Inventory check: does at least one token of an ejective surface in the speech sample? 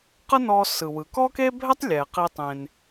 no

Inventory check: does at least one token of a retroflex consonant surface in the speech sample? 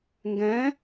no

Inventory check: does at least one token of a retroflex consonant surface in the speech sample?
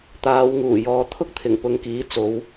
no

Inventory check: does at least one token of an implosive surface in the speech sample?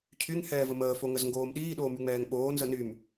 yes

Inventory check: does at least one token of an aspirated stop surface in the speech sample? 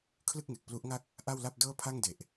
yes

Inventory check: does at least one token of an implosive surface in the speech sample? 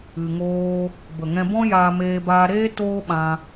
yes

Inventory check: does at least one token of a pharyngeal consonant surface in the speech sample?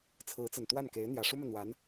no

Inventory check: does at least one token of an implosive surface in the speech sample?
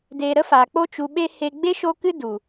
yes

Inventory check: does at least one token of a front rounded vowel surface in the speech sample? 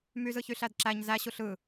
yes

